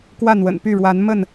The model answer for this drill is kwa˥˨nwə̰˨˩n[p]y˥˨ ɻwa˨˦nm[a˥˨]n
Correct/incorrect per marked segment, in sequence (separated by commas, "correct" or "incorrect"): correct, incorrect